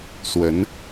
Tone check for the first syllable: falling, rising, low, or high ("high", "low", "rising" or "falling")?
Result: rising